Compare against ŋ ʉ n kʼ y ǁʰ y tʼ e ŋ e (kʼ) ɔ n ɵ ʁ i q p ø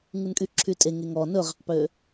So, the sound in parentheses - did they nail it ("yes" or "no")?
no